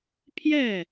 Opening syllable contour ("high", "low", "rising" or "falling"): falling